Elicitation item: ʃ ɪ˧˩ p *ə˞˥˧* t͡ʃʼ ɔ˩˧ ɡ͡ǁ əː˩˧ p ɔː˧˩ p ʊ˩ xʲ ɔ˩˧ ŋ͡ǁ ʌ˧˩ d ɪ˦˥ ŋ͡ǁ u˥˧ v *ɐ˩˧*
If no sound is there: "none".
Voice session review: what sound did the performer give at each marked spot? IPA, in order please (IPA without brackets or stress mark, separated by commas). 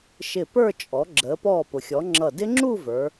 ə˞˥˧, ə˞˩˧